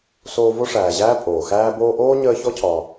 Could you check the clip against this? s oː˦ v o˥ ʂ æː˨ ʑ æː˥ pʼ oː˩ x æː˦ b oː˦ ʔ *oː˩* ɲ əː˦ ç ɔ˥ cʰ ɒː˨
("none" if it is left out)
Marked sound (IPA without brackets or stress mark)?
oː˥